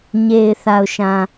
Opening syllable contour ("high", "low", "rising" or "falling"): low